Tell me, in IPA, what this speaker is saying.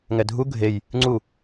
ŋɛdʱu ɡʱej | ŋ͡ǀu

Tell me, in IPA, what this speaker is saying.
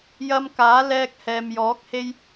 jɐ˧mkaː˨˥ lɛː˧k̚hɛː˨mjɔː˨˥k̚ he˥j

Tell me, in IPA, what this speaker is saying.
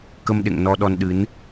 kə˧mɗḛ˧˨ŋ nɔ˧ɗɔ˧n ɗɨ˨˦n

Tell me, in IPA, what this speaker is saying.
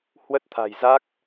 hwə˦˥t̚t̪ʰa̤˨˩j za˦˥k̚

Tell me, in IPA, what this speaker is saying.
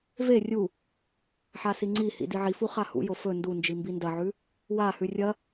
ve rʲu | ħasiŋ͡ǀihḭ diʕifu χahṵjo fɵ ndund͡ʒi mbindɐʕʉ | wahʉ rʲɐ

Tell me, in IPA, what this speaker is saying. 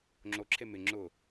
ŋ͡ǁoǁʰe mɪ ŋ͡ǁʊ

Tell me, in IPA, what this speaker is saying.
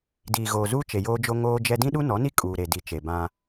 diː˨ɣoː˨ zuː˦t͡ʃe˨joː˦d͡ʒo˦ ŋoː˦d͡ʒɛ˦ dĩ˦ɗu˦nɔ˨˦ni˦ kʼuː˨ɾe˨di˨t͡ʃe˨ bã˦

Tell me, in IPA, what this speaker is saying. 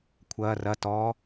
kʷʰɐː rɐ tɔː

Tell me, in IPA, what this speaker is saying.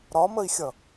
ɾɒməi̯xʲʌ

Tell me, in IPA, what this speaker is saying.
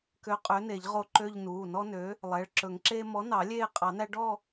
kø˨˥ qʼø˨˥ne˨˩˦ʎʁo˦˨ ǃø˦˨ʎ nuː˩˧˩nɔ˦nø˨˥ | lˠɛ˩˧˩ɭǁɵ˨˩˦ŋǁeː˦ mɔ˨˥nɑ˨˩˦ lʲeː˦˨qʼɑ˨˩˦næ˦ ɖɔ˦˨

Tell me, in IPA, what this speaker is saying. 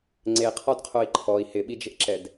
ŋ͡ǀeqʰɔdqʰoi̯ ǃʰɔi̯ hɪɓid͡ʒɪʔǁɛd

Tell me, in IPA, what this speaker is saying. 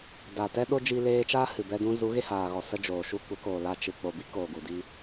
da˨ tɛ˦ɗo˦d͡ʒi˧ leː˧t͡ʃaː˦ hɨ˨bɛ˧dũ˧ zu˨˦ɣe˧haː˨ɣɔ˨ sə˧d͡ʒoː˨ʃu˧kʷə˨˦ koː˨la˧t͡ʃɨ˨ k͡po˨bi˦ koː˨ɡu˨di˦

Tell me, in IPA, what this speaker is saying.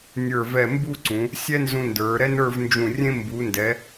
nʲə˞˧˩vɛ˧˩mbu˥˧ǀũ˩˧ | sʲɛ˥nzũ˧ndə˞˩˧ ɾɛ˥nə˞˥˧vnd͡ʒũ˧˩rʲẽ˥ mbu˩˧ndɛ˩˧

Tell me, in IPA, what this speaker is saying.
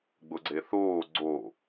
ɡ͡bʊɡ͡ǀeθoː ɡ͡ǀo

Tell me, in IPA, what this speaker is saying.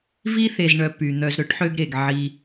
vi˥θe˨zɳœ˨ py˩n̪œ˨z ɾɵ˥ʈħø˦ɡɾe˩ɡ ʕi˨

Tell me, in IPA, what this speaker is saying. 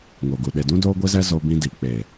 ŋo˨ɡu˨ ɗe˨dũ˦ doː˦ɡʷi˦zɛ˦ zo˦bĩ˦di˨ k͡pe˨

